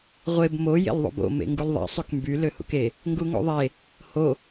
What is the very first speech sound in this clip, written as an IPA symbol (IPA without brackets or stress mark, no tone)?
ʁʷ